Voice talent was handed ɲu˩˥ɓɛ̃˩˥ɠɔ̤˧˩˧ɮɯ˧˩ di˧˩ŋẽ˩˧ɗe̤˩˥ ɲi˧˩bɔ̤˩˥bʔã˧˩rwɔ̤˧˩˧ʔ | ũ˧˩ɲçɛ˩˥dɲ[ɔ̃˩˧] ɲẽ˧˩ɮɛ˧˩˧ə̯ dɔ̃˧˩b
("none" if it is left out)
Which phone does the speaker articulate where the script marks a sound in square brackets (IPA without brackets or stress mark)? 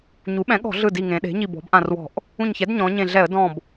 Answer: ɔ̃˩˧